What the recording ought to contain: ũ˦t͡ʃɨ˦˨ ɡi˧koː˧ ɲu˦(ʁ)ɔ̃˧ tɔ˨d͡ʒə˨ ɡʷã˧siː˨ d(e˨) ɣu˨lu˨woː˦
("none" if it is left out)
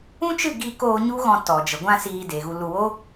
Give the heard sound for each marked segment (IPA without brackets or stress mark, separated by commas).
ɣ, e˨